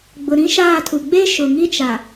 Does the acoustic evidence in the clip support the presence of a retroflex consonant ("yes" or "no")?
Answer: no